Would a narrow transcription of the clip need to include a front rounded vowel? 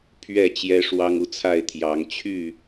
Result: yes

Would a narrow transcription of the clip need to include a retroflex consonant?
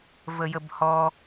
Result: no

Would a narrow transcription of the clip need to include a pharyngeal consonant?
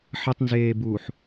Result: yes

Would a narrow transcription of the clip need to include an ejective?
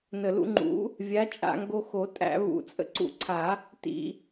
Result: yes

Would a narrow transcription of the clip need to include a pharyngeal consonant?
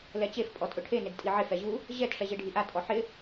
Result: yes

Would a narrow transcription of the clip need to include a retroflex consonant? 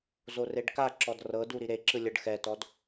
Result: yes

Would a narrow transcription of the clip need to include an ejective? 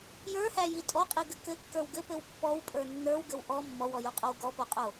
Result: yes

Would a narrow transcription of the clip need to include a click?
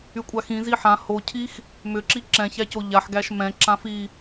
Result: yes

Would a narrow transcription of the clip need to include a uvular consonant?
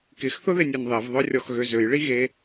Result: no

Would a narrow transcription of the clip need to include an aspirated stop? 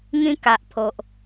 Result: yes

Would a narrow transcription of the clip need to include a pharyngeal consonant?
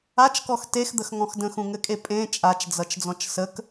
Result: no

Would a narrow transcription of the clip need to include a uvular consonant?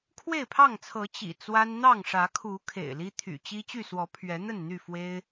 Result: no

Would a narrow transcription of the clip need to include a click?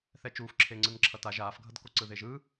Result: yes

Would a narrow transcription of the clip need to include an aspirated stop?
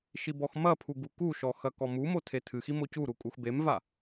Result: yes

